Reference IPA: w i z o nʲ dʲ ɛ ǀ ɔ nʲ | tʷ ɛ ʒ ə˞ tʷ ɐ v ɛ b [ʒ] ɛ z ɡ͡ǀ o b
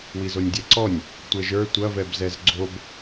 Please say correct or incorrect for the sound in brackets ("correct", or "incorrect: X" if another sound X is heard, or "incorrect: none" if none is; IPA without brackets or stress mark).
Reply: incorrect: z